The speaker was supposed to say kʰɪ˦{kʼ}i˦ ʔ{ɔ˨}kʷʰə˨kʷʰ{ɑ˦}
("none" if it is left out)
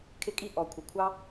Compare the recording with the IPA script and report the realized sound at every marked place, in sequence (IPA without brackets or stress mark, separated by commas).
kʼ, ɔ˨, ɑ˦